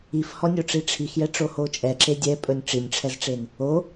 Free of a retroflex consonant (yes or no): no